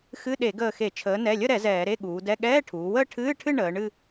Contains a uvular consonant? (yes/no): no